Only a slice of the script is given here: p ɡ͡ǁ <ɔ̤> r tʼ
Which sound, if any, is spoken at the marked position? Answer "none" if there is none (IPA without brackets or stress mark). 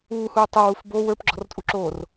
ɔ̤